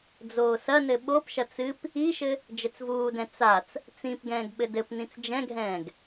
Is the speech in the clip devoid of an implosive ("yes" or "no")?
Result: no